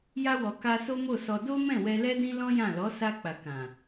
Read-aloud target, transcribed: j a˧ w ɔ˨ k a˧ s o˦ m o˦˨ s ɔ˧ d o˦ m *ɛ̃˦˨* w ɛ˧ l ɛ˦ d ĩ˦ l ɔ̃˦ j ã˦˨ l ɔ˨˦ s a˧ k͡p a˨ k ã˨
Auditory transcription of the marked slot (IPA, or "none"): ɛ̃˦˨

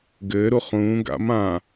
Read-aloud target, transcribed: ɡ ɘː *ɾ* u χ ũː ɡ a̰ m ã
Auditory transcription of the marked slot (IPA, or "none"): ɾ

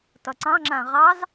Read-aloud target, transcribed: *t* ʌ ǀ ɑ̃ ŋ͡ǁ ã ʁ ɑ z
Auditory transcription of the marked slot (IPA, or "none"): t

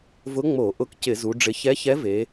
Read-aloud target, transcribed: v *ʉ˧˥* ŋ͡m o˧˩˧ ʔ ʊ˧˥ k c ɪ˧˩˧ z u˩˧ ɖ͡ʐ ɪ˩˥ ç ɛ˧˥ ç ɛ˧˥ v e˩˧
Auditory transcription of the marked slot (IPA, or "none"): ʊ˧˥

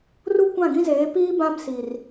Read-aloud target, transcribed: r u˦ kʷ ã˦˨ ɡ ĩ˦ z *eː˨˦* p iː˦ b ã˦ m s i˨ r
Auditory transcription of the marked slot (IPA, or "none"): eː˨˦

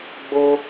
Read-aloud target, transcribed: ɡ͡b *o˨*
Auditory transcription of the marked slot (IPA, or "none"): o˦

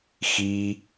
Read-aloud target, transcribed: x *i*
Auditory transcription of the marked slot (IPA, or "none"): i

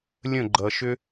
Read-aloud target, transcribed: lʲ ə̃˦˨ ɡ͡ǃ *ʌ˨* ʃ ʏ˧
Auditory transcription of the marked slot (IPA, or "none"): ʌ˨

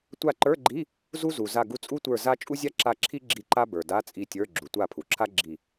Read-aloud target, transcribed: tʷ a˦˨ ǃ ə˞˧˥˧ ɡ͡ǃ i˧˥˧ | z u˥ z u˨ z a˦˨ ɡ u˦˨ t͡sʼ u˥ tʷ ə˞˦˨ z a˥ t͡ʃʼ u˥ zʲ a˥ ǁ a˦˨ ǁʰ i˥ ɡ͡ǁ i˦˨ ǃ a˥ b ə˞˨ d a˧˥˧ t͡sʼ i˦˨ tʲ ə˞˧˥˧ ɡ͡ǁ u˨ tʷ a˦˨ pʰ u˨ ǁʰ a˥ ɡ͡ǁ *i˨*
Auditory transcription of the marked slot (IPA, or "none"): i˦˨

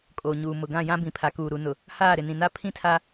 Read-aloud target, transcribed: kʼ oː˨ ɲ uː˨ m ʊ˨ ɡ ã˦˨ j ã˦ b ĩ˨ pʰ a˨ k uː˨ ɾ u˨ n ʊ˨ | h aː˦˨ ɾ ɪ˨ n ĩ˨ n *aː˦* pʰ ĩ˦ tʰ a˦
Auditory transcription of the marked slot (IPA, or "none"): a˦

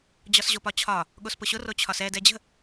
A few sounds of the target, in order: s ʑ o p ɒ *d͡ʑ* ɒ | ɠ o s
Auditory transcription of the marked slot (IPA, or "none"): t͡ɕʰ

